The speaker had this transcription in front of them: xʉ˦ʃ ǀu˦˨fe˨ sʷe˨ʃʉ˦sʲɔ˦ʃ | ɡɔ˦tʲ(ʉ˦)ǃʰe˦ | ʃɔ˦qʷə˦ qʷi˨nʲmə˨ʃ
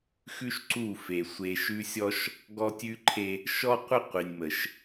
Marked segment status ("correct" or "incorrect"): correct